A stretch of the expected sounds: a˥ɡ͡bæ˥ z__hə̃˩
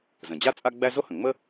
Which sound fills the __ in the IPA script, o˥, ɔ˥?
o˥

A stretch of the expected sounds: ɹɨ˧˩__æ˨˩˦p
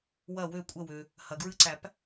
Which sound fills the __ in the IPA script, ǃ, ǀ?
ǀ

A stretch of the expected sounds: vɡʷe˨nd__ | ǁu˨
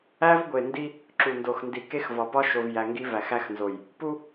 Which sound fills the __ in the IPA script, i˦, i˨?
i˦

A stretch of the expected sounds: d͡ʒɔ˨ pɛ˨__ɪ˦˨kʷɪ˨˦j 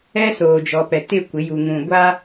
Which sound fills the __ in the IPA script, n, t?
t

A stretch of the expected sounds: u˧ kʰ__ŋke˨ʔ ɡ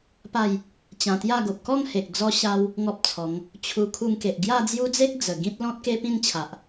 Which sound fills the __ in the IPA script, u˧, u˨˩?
u˧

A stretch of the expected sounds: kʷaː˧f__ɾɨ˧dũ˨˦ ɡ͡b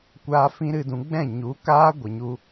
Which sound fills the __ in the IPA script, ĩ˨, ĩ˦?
ĩ˦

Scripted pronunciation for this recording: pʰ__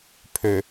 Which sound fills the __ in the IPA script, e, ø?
ø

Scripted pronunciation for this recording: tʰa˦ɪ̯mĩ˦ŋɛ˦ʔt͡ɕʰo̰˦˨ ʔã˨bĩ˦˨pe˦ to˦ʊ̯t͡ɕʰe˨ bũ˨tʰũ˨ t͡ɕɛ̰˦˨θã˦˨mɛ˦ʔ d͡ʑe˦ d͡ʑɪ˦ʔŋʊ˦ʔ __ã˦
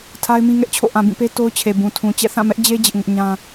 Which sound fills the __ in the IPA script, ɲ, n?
ɲ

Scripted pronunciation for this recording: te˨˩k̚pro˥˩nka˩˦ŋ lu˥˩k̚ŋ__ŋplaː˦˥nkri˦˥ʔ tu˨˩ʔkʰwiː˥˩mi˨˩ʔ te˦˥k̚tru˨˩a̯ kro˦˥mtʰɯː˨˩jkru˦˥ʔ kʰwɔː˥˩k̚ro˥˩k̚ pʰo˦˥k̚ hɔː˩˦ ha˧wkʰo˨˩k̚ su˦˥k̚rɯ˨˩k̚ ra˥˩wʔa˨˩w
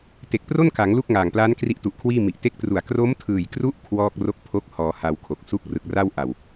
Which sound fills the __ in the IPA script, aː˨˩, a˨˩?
aː˨˩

